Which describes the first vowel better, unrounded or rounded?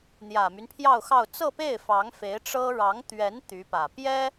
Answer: unrounded